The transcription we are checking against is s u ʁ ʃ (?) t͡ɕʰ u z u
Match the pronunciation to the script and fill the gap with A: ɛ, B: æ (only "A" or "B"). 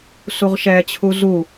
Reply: A